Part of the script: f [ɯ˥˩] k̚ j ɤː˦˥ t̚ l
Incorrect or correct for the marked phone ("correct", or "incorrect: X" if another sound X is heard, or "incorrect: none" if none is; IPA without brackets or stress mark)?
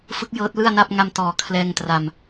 incorrect: ɯ˦˥